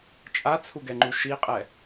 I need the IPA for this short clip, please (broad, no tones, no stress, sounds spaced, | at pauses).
t͡ʃʼ a t͡sʰ u ɡ ɛ ŋ͡ǃ u ʃ i qʼ ɛ